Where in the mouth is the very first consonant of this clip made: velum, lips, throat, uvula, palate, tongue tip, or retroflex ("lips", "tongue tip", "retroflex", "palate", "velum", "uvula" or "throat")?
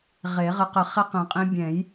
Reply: uvula